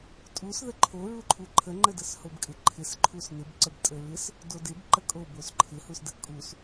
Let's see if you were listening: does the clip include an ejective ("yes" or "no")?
yes